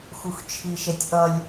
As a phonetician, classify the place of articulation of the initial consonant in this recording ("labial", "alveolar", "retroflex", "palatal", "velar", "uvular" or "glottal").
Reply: velar